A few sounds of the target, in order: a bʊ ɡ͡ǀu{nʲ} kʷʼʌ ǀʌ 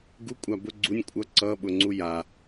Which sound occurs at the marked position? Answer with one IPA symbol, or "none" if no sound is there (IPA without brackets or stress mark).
nʲ